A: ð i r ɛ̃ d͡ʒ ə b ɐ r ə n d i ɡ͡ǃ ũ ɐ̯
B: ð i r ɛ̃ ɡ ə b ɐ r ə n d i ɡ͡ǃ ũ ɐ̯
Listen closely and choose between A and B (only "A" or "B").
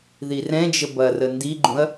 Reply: A